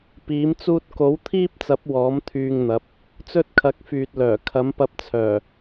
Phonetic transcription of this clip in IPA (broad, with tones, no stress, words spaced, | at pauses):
piː˨˥mt͡suː˥t̚ ko˨˥wt̪ʰiː˥p̚t͡sɐ˨˥p̚ wɔː˨˥mt̪ʰyː˧ŋn̪ɐ˨˥p̚ | t͡sɵ˥t̚kʰɐ˨˥k̚fyː˨t̚lœː˨˩ kʰɐ˨˥mpɐ˧p̚t͡sʰœː˨˩